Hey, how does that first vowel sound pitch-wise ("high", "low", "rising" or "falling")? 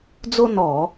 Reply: high